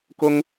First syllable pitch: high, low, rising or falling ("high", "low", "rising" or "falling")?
high